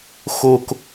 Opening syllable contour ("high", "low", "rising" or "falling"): low